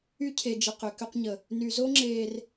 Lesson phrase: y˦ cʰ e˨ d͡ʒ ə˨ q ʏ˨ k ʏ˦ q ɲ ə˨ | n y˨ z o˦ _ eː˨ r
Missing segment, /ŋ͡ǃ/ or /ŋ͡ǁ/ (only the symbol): ŋ͡ǁ